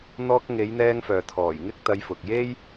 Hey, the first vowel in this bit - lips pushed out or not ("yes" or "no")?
yes